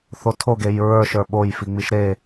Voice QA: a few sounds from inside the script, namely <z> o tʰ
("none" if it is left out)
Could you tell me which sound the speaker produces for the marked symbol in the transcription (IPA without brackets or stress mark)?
θ